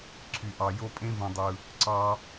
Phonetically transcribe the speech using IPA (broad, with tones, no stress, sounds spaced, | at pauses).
ǀʰ y˨ ʔ ɑ˨ j o˦ pʼ ẽ˦ v ũ˨ dˤ ɯ˨ | ǀ ɑ˦